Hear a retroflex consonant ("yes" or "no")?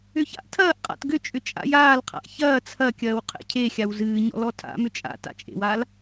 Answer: no